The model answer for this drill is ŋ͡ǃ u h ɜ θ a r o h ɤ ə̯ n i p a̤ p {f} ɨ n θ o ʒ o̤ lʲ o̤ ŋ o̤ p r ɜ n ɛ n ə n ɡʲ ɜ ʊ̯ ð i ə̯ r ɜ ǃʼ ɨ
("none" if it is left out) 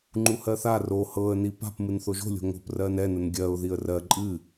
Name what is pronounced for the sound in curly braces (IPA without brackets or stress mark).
m